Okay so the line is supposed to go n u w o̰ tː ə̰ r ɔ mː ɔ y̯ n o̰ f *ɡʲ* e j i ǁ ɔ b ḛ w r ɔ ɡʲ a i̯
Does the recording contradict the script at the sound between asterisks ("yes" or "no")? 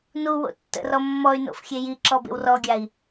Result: yes